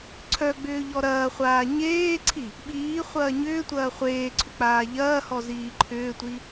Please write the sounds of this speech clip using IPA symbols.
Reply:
ǀʰ œ ɡ͡b ʏː ʎ ɔ ɾ ɐː χʷ aː ɲ eː ǀʰ i | ɓ iː χʷ ɐː ɲ ʏː tʷ ɐː χʷ eː ǀʰ ʏ k͡p aː ʎ ɐː h ɔ z iː ǃʰ ʏː tʷ i

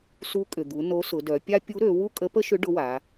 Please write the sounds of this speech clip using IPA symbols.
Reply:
s u˧˥ kʼ ʏ˩ d̪ u˩˧ n o˧˥ s ʊ˩˧ d œ˩˧ pʲ a˥ pʲ u˧˥ ɾ ø˩˧ w u˥ kʼ ə˧˥ p ə˥ ʃ ʏ˧˥ ɖ ʊ˧˥ w a˩˧

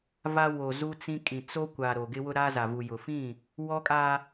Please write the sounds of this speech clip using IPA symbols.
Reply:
v a˦ w o˨ z u˦ t͡s ĩ˦ kʼ ĩ˨ t͡s o˦ kʷ a˨ ɾ o˨ ɡ ɪ˦ w ʊ˦ ɾ aː˦ z a˨ v u˨ j ʊ˨ f ĩ˦˨ | w ɔ˦ kʼ a˦

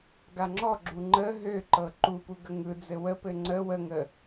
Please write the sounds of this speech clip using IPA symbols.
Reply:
ɡ a ŋ͡ǁ ɔ ɡ͡ǁ u ŋ͡ǃ ə ɦ ø ǃ ɤ ǃ u p u ɡ ə ŋ ɯ d͡z ɘ w ə p ɘ ŋ͡ǀ ə w ə ŋ ə

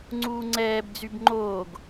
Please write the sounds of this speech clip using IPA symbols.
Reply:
ŋ͡ǀ uː ŋ͡ǀ ɛː b d͡z y b ŋ͡ǃ oː ɡ

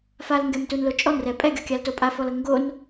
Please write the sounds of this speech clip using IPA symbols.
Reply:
f a l ŋ ɡ ɛ m t u n l o t͡ʃʼ ɔ n r ɛ pʼ ɛ ɡʲ ɔ kʲ a l t o pʼ a f ɔ l ɤ ŋ ɡ o n

